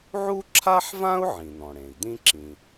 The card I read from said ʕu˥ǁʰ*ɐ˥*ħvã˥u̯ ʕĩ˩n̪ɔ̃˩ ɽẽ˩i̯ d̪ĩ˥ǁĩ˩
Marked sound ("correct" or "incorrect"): incorrect